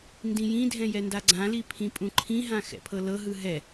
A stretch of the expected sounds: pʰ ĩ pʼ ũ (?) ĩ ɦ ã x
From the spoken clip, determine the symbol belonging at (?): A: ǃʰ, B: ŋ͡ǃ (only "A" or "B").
A